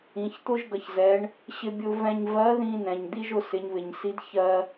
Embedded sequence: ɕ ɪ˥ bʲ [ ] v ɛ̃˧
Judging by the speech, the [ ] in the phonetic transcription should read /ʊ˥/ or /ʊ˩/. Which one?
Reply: ʊ˥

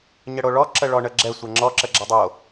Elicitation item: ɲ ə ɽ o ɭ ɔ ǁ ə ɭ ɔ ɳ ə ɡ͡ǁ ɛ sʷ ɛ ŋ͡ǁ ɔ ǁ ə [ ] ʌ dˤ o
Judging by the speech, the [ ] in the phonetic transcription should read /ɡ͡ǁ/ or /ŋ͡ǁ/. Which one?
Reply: ɡ͡ǁ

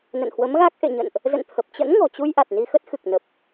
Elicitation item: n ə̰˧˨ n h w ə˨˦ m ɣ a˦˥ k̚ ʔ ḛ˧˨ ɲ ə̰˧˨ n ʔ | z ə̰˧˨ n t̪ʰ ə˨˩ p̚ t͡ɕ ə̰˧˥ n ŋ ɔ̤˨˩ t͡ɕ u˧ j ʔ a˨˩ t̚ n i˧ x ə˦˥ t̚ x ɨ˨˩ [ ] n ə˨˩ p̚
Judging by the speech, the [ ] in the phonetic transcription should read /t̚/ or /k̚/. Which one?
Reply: k̚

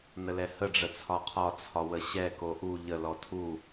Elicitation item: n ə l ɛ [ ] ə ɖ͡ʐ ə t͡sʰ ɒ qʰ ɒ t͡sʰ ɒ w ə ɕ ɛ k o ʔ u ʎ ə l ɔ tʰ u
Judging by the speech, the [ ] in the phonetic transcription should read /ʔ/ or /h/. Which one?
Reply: h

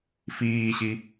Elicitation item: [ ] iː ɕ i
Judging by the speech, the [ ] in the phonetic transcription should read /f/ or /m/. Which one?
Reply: f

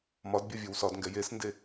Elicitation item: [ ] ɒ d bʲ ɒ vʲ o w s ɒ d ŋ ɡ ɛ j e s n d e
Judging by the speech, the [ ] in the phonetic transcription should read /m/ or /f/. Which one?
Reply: m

